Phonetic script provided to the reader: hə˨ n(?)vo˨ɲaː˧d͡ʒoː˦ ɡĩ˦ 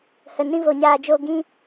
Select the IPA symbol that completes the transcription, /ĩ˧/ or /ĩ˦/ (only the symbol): ĩ˦